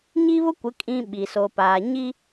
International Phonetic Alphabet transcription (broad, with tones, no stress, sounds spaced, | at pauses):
ɲ i˦ β ʊ˦ kʷ ɪ˨˦ kʼ ĩ˦ ɓ i˨ s o˨ p aː˨ ɲ i˦